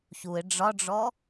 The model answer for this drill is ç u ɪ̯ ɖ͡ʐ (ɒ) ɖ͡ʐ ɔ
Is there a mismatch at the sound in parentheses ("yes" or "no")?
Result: no